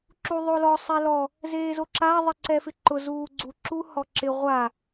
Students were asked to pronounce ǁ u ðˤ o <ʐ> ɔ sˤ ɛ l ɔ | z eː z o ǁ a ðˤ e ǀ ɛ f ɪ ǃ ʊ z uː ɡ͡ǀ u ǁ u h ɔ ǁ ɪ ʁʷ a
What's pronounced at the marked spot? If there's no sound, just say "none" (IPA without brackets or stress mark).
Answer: l